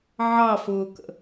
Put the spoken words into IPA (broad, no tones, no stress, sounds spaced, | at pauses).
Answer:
ʕ ɑ f ʊː k ə̰